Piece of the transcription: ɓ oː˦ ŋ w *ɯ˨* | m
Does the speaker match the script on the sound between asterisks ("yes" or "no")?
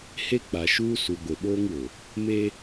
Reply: no